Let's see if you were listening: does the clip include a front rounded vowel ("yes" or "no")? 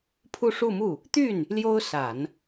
yes